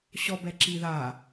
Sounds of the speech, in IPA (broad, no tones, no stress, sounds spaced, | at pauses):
ɕ ɔ b ɛ ǁ i ð a